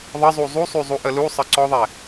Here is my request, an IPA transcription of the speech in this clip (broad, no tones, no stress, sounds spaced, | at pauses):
ðˤ ə zˤ u zˤ u sˤ y zˤ u ʔ ə l u sˤ ə ǀ ɔ ðˤ ɛ